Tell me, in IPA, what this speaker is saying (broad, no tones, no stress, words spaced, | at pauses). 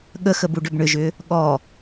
ɠəxə buɖʏbɳʏʒʏ | ɠɔ